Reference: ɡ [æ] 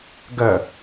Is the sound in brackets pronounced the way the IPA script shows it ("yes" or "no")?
no